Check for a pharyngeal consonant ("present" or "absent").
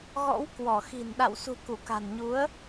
absent